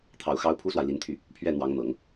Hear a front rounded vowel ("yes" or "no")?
yes